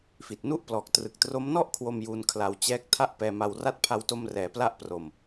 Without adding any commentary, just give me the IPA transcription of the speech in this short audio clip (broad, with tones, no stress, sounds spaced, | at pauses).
f i˨˩ t̚ n u˥˩ ʔ p l ɔː˨˩ k̚ t r ɯ˨˩ k̚ t r o˦˥ m n ɔ˥˩ ʔ kʰ w o˧ m j u˧ n kʰ l a˧ w t͡ɕ ɛː˦˥ k̚ tʰ a˥˩ ʔ p ɛː˧ m a˧ w r a˥˩ t̚ pʰ a˧ w t o˧ m r ɛː˩˦ p l a˥˩ ʔ p r o˧ m